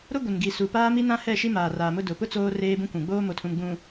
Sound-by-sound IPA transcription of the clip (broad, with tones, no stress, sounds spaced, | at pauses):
ɾ ʊ˦ ɡʷ ɪ˨ n ɡ i˨ s u˨ p aː˦ m i˦ n ã˦ h ɛ˦˨ ʃ i˦ m aː˨ r aː˨ m ʊ˦ d ʊ˨ p ʊ˦ t͡s oː˦ r eː˦ b ũ˦ kʷ ũ˨ ɡ͡b oː˦ m o˨ tʰ ũ˨ m ɡ͡b ũ˨